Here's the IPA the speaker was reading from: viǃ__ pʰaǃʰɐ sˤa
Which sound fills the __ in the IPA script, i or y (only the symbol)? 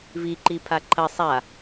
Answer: i